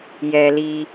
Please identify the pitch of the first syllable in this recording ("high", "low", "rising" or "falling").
low